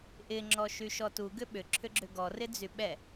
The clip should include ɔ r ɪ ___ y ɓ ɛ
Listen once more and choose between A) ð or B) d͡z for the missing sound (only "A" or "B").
B